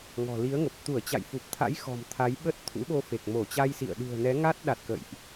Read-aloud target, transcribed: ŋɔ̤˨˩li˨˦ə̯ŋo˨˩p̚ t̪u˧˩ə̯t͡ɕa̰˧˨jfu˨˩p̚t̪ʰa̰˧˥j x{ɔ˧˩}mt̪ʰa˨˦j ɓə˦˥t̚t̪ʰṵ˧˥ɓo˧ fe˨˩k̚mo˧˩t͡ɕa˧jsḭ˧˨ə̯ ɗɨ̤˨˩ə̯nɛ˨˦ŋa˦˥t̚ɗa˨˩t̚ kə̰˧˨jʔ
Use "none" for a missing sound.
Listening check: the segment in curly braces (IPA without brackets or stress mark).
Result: ɔ̤˨˩